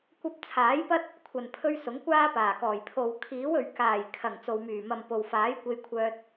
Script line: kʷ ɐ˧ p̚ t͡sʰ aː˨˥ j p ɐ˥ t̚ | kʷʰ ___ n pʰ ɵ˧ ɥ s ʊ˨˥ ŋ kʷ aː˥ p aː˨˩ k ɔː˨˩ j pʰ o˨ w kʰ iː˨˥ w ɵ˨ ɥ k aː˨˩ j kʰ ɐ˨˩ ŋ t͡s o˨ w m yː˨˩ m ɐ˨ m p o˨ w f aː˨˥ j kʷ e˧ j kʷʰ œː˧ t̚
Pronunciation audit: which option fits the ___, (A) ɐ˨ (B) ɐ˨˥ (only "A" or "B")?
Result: A